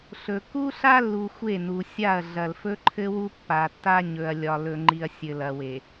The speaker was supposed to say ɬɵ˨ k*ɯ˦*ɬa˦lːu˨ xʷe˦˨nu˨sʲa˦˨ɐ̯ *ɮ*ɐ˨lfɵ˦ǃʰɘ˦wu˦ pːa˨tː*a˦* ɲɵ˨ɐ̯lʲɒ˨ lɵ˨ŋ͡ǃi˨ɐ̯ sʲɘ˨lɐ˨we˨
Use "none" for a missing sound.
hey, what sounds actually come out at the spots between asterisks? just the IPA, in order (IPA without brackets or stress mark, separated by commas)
u˦, ɮ, a˦